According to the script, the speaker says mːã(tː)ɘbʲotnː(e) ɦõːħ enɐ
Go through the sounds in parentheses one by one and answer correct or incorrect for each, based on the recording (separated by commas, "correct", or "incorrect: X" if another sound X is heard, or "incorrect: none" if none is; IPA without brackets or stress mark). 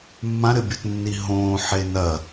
incorrect: ɾ, incorrect: i